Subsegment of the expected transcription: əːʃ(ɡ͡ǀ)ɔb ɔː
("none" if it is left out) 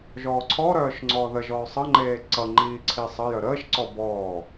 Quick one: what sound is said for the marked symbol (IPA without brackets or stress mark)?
ǀ